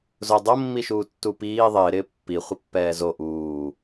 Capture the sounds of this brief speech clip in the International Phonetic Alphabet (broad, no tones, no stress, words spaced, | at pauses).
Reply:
zʊ dˤomːiʃuː tːupiː ðˤɪːɾɪː pːiχʷɪ pːɛːzo ʔuː